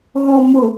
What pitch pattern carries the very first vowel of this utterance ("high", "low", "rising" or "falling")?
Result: low